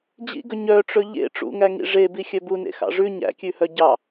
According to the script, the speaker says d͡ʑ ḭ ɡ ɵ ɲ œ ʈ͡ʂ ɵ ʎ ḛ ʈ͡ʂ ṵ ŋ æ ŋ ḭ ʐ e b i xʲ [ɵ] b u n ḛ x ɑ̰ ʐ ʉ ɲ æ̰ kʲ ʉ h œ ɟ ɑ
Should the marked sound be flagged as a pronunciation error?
yes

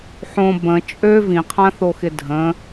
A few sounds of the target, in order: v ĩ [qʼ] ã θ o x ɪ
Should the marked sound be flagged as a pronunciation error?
yes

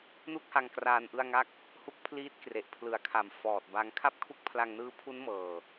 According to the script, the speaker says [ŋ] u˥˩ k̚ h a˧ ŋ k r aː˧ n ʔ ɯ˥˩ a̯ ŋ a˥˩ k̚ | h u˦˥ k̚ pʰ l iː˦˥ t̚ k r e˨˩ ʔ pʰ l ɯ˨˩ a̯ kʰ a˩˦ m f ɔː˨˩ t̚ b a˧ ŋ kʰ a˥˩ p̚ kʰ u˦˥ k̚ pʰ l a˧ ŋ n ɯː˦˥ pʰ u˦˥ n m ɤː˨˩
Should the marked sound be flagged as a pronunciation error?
yes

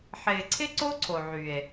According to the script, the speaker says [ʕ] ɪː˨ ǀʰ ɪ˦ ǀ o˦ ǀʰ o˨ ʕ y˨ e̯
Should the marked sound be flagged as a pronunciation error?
yes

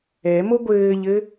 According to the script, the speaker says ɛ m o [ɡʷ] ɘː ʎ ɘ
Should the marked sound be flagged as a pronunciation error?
no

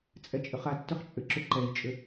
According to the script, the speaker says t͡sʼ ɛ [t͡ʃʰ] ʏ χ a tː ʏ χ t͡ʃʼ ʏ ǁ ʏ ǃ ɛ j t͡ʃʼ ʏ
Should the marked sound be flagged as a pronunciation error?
yes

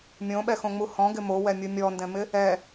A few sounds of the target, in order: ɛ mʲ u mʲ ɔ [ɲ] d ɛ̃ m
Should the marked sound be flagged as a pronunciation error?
yes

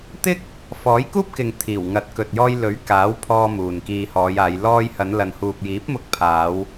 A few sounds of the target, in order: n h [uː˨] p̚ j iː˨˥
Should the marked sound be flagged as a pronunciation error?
no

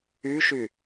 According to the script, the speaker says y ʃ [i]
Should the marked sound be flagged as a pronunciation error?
yes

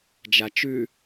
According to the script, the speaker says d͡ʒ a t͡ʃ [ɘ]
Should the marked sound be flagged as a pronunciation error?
yes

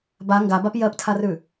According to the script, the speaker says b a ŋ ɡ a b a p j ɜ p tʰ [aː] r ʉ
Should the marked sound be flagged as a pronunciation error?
yes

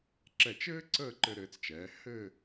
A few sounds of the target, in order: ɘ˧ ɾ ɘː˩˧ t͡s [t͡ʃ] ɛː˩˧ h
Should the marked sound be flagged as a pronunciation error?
no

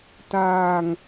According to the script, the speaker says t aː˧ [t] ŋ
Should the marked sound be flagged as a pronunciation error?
yes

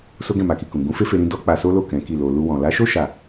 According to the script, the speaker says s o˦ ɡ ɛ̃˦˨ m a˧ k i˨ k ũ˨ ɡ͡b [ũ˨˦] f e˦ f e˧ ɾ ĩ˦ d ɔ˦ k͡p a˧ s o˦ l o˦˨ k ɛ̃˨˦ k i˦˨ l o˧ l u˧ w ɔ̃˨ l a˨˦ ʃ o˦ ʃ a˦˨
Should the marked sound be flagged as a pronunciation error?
no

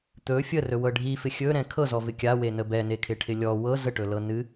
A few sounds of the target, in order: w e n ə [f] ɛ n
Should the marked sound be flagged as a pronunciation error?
yes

